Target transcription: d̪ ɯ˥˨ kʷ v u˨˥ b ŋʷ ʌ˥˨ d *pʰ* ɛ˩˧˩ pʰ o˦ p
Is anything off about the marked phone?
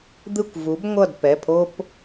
yes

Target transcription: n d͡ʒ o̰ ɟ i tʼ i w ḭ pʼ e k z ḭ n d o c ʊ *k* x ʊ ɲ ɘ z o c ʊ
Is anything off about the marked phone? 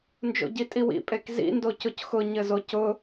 yes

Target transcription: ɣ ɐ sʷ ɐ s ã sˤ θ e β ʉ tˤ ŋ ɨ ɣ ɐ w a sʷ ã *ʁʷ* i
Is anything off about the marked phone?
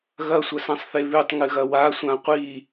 yes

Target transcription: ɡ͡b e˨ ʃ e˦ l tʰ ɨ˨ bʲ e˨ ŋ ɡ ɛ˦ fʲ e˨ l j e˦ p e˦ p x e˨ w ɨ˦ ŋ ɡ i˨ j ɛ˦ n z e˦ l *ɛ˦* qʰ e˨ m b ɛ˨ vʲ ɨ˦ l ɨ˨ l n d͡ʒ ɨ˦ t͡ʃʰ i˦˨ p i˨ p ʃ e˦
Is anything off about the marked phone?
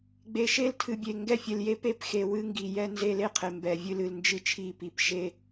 yes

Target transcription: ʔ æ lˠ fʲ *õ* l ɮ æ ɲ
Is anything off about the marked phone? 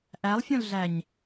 no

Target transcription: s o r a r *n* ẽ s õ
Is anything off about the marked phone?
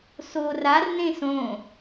no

